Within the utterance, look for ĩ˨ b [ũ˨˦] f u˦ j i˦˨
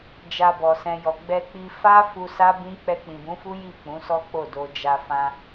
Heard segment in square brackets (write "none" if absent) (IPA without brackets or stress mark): ũ˨˦